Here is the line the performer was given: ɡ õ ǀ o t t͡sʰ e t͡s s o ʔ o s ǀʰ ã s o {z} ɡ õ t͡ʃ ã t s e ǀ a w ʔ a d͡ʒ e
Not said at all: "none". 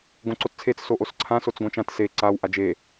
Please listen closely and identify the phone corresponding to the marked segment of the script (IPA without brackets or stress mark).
t͡s